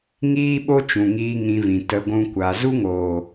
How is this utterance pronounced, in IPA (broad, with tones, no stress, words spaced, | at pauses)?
ŋiː˦ɓo˦t͡ʃũ˨ŋiː˧ ŋĩ˧vĩ˨ tə˧ ɡʷũ˦kʷa˧ zu˦ŋoː˨